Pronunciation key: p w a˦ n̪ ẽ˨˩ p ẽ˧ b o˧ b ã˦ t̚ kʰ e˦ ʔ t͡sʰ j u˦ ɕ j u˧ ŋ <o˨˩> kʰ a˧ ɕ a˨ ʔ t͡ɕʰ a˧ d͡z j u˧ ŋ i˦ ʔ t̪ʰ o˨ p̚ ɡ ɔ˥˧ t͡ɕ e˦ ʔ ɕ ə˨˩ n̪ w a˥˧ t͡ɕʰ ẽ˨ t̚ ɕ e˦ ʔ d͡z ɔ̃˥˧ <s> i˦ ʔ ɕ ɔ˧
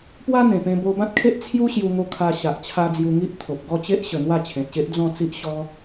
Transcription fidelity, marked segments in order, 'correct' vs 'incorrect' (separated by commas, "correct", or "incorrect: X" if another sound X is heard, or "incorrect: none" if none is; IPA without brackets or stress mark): incorrect: o˧, incorrect: t͡s